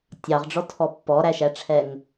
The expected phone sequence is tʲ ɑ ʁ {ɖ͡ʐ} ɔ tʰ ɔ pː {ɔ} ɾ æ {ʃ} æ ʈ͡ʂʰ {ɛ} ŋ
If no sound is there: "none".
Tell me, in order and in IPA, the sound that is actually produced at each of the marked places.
ɖ͡ʐ, ɔ, ʃ, ɛ

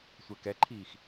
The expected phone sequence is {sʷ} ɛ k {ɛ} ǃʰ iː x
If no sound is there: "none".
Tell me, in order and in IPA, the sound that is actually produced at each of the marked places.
sʷ, ɛ

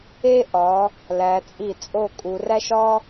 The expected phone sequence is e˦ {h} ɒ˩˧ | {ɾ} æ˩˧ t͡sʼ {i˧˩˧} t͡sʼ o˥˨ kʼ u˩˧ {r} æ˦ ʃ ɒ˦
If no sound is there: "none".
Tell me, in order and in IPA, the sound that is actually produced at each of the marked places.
ʔ, l, i˧˩˧, r

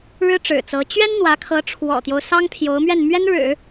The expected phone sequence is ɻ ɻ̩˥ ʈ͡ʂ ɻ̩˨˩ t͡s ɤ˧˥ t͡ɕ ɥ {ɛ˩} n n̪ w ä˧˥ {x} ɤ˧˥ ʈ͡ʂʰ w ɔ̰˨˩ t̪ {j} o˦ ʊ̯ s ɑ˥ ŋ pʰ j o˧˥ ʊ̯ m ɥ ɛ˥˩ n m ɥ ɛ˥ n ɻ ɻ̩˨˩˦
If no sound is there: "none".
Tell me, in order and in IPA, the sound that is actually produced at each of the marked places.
ɛ˥, kʰ, j

